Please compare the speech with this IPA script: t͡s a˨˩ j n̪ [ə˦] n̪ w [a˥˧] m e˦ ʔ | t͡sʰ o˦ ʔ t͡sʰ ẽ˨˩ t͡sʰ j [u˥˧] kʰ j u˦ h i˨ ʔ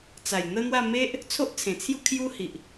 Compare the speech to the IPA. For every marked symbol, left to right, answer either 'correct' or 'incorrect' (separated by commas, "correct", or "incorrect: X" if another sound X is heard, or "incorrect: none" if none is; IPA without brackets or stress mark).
correct, correct, correct